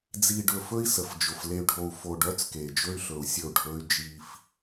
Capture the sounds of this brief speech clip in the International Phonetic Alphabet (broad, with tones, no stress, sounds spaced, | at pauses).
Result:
d͡z i˨ ɖ ɵ˨ f ɵ˦ i̯ s ə˨ f d͡ʒ ʊ˨ f l e˨ y̯ ɖʱ o˨ u̯ f o˨ ɖ œ˨˦ t͡s k e˨ d͡ʒ ɵ˦ y̯ ɬ ɵ˨ u̯ sʲ ə˦˨ u̯ ɖʱ ɵ˦ y̯ d͡ʒ i˦ f